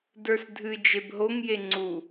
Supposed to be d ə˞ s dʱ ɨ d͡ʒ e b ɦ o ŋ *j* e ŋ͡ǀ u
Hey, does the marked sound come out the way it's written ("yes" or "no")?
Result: yes